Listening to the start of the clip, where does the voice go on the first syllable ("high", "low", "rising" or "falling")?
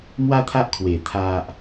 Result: high